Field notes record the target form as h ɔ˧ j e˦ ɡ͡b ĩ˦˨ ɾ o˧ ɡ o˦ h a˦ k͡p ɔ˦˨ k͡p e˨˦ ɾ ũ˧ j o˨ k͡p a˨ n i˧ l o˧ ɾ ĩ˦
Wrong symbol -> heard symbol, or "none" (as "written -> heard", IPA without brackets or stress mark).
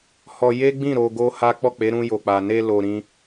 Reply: i˧ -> e˧